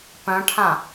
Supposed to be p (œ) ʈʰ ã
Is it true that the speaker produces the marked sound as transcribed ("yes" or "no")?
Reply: no